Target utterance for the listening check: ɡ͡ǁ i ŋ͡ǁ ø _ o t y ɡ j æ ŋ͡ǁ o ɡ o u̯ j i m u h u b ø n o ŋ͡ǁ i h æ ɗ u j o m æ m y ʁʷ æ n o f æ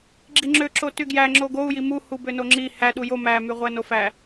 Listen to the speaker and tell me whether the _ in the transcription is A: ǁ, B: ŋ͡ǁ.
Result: A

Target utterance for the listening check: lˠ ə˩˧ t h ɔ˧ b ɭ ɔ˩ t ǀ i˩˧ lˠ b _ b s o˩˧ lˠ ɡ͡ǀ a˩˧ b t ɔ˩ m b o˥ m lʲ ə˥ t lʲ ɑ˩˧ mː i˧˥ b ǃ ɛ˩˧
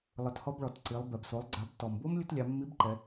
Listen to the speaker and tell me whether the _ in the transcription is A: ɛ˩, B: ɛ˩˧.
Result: A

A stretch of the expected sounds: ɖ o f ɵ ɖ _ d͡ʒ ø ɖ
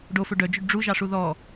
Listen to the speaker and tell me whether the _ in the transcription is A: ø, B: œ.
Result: B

